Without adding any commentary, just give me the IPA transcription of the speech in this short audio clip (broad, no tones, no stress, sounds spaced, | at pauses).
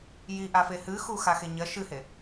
j i ʔ a f e h ɨ x u x a x e ɲ ɐ ʃ ɨ h e